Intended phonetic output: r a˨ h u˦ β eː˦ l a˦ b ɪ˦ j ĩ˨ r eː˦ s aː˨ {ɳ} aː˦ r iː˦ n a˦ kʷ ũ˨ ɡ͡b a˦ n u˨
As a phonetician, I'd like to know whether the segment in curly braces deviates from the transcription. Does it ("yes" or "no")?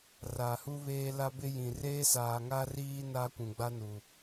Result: yes